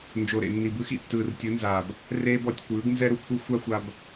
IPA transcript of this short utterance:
n d͡ʒ o˨ ɾ ḛ˨ nː i˨ b ɯ˧ x ḭ˨ tː ɯː˨ r tʲ ɯ˨˦ n z aː˨ b | r eː˦ b ɔ˧ tʲ kʷ ɯː˨˦ ɡ n z ɛ˦ ɾ u˨ kʷʰ ɯ˦ xʷ a˦ xʷ a˧ b

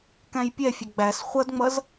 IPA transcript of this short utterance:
k æ̃ j pʲ ɛ fʲ ʊ ɡ͡b æ s χʷ ʌ d ŋ͡m ʌ z

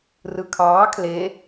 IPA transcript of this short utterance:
r ɯ kʰ ɑː kʰ l e

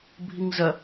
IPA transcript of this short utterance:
bʱ i ŋ z ɐ

